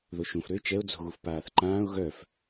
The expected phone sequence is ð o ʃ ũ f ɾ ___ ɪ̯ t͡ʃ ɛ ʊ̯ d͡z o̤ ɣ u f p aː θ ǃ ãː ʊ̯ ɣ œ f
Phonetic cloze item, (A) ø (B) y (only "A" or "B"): A